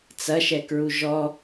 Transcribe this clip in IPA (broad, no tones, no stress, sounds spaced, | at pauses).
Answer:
t͡s ɐ ʃ ɛ k ɹ u ʒ ɔ